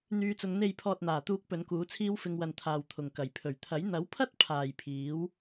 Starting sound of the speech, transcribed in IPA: n̪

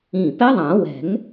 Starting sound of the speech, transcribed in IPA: ĩ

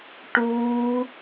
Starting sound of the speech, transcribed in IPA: ʈ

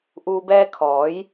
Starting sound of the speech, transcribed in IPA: ʔ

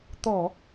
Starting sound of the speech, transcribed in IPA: t̪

